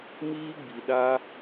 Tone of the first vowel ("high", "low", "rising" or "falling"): high